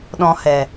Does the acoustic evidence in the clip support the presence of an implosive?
yes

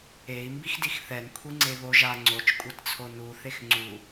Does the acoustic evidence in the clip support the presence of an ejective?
yes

